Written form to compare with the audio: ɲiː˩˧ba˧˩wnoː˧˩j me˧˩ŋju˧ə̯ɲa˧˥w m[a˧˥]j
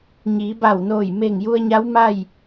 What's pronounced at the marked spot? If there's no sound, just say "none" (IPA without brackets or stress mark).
a˥˨